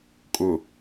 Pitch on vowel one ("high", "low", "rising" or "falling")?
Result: low